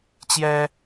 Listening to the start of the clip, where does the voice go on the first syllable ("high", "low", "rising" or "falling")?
high